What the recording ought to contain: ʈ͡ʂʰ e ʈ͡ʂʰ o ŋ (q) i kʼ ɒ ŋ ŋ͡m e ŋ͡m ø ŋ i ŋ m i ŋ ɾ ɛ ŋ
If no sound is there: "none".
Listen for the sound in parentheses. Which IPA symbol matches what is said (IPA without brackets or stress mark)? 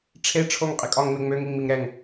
qʼ